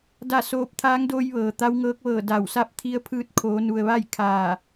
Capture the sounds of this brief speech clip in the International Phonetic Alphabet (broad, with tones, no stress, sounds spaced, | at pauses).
d a˥˨ s oː˧ p̚ t̪ʰ aː˧˥ ŋ d oː˧ j ʋ ɤː˩ t̪ a˧˥ w ŋ ɤː˧˥ k̚ ʋ ɤː˧˩ d a˧˩ w s a˥˨ p̚ t̪ʰ i˧˥ ə̯ pʰ ɯː˧ t̚ kʰ oː˩˧ n u˩ ə̯ ʋ a˥˨ j kʰ aː˧˩